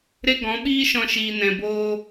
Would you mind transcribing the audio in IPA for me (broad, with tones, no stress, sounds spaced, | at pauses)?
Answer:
ɾ e˦ ɡ ɔ̃˨˦ ɓ iː˦ ʃ ɔ̃˧ ʃ iː˨ n ɛ̃˨ b oː˧